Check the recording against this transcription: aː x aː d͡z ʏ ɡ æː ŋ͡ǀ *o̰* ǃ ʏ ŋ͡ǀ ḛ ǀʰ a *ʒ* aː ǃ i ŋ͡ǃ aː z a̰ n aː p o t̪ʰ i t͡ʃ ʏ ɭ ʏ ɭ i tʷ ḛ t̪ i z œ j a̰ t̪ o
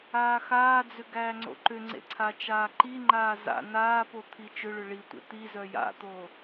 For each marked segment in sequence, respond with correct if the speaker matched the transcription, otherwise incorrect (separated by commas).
correct, incorrect